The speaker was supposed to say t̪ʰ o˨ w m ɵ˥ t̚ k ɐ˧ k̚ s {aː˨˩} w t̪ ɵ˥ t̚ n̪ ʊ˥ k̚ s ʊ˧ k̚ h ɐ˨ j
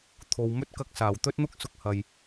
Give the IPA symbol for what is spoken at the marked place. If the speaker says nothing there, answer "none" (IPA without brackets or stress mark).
aː˨˩